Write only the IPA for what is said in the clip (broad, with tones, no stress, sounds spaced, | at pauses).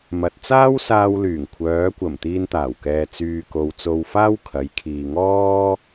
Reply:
m ɐ˨ t̚ t͡s aː˥ w s aː˧ w l yː˨˩ ŋ kʷʰ œː˨˧ kʷ ɐ˨˩ m t̪ iː˧ n t̪ aː˨˩ w k ɛː˨ t͡s yː˧ k o˧ w t͡s o˧ w f aː˥ w kʰ ɐ˨˧ j kʰ iː˨ ŋ ɔː˥